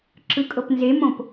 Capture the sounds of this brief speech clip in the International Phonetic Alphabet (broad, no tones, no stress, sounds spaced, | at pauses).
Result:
ǁ ɯ kʼ ɤ p n z e m õ p